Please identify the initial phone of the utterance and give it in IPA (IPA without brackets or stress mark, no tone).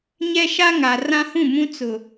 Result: ɲ